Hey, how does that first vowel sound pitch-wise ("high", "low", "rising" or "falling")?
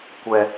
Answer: low